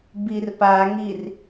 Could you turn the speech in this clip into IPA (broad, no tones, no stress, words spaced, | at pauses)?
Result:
birpaŋir